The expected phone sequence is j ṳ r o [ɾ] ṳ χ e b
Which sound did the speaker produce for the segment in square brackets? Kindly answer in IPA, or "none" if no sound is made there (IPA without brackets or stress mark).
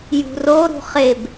ɾ